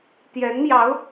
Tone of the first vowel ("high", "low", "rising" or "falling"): rising